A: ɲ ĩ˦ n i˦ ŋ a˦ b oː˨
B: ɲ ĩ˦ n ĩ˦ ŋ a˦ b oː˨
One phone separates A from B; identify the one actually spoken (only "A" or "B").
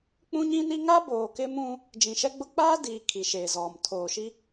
A